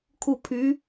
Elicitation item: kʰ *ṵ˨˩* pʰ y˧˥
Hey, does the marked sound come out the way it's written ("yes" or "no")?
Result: no